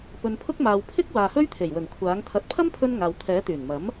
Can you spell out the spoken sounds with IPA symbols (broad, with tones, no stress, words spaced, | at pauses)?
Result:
pɵ˨npʰʊ˥k̚maː˨w pʰɪ˥k̚ waː˨hɵ˥ɥt̪ʰe˨˩jwɵ˨˩n kʷʰaː˨˥ŋ t̪ʰɐ˨t̚pʰɐ˥mpʰɵ˧n ŋaː˨wt̪ʰɛː˨˥ t̪yː˨˩nmɐ˨˥m